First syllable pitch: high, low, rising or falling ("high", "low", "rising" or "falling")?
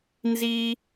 high